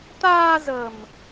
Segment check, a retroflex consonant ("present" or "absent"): absent